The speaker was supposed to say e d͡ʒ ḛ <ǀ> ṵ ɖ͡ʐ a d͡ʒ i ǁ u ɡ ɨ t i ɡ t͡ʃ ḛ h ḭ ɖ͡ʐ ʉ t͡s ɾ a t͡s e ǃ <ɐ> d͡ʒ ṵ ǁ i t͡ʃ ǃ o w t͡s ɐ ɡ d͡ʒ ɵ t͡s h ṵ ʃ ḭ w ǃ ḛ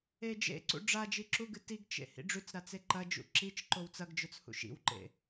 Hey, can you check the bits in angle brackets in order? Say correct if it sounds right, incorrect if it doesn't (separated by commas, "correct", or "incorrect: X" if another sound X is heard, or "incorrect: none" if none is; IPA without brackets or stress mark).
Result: correct, correct